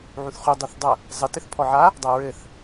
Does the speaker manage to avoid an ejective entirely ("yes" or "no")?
yes